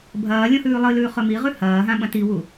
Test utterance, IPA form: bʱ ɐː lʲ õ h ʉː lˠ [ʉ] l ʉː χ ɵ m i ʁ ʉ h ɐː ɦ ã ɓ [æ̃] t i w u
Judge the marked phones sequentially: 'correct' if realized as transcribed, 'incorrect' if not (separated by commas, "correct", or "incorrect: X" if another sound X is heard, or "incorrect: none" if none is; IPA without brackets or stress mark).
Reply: incorrect: ɨ, incorrect: ɐ̃